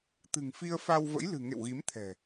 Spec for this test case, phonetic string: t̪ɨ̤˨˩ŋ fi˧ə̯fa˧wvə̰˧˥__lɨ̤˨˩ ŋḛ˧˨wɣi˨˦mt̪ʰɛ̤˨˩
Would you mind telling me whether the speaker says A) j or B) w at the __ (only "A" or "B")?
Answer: A